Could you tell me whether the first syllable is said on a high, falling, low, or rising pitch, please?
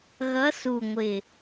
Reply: rising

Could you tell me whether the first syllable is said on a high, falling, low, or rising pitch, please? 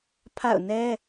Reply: falling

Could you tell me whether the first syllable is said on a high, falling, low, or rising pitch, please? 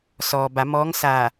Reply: low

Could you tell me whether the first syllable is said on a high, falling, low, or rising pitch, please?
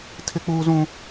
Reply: high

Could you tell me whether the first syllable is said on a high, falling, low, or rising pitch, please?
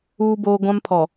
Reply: high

